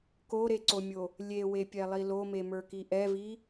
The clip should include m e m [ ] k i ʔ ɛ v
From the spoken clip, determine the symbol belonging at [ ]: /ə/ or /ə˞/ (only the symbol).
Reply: ə˞